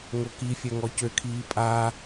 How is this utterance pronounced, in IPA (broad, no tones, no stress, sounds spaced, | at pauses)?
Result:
ŋ o k i fʲ œ ŋ ɔ c ø kʰ iː pʼ a